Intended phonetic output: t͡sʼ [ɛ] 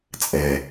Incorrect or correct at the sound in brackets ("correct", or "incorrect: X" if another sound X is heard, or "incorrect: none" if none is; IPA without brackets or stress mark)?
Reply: correct